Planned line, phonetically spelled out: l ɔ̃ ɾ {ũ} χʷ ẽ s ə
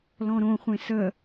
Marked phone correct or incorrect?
incorrect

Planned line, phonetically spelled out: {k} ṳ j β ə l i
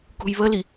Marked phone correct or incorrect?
correct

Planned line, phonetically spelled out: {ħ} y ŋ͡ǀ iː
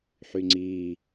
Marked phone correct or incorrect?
correct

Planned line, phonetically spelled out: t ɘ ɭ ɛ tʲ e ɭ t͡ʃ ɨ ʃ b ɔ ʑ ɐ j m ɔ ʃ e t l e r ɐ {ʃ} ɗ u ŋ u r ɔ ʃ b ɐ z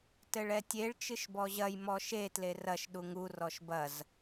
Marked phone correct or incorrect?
correct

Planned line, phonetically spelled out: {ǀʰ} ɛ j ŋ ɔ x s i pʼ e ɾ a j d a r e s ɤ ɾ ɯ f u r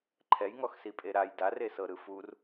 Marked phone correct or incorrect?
incorrect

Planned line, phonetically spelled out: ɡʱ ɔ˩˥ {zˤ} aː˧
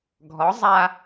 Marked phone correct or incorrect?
correct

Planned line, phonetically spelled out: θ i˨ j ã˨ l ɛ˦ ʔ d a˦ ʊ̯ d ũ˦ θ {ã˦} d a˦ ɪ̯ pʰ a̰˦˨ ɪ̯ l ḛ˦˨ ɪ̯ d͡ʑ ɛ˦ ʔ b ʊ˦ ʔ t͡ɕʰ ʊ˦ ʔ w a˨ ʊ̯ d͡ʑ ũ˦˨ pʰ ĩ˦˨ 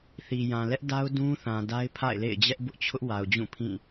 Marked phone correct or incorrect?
incorrect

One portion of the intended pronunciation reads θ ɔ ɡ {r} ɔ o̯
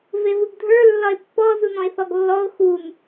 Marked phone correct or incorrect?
incorrect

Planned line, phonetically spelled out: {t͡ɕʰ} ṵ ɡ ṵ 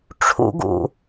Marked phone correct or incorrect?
incorrect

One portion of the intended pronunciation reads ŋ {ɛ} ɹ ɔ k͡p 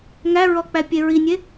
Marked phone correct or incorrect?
incorrect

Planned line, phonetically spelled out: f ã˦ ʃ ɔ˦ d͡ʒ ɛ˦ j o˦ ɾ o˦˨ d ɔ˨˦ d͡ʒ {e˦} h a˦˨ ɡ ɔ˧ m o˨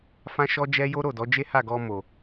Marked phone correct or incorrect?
correct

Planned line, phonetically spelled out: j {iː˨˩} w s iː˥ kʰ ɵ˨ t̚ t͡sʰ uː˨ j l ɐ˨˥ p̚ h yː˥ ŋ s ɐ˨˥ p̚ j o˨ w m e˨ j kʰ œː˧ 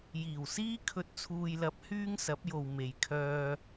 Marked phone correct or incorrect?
correct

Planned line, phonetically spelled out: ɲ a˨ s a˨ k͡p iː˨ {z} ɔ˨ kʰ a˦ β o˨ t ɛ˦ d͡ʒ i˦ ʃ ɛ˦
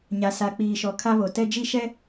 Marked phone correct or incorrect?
incorrect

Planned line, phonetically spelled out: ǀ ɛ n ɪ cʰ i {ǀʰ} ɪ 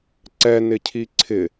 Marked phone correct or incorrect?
correct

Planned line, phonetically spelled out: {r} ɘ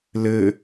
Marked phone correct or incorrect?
incorrect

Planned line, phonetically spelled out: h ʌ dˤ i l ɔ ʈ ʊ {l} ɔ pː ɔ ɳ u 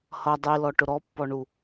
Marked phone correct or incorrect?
incorrect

